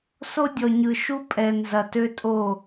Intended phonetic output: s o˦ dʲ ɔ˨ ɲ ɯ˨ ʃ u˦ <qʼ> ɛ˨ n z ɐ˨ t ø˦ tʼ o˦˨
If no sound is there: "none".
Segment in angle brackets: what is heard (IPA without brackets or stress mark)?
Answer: pʼ